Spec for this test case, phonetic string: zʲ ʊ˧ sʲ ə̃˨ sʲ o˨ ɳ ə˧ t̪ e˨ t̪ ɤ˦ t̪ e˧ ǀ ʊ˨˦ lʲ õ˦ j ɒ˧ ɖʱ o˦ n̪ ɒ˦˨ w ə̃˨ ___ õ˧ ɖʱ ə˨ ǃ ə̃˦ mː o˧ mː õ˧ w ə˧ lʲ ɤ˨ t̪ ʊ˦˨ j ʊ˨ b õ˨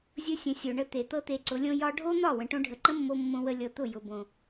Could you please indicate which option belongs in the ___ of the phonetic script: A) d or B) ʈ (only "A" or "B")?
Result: B